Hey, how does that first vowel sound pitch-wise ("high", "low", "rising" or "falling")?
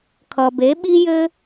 low